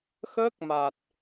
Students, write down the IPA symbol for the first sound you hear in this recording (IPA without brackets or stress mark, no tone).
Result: x